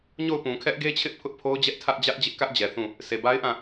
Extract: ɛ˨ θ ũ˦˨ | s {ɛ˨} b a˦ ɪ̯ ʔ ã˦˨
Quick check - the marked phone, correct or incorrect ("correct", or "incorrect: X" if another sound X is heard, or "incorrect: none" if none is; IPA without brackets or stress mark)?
incorrect: e˨